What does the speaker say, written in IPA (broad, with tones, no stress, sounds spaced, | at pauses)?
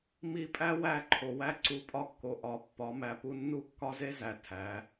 m i˧ pʼ æ˦ w æ˦˨ ǃʰ o˨ w æ˧ ǀ u˨˦ pʼ ɒ˧ kː o˨ ʔ ɒ˨˦ pː ɒ˨˦ m æ˨ p u˦ nː u˦ kː ɒ˦ z e˦ z æ˨ tʰ æ˨˦